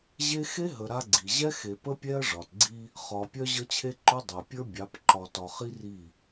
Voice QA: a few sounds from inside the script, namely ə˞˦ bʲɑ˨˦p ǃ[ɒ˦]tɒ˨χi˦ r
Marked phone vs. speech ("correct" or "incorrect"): incorrect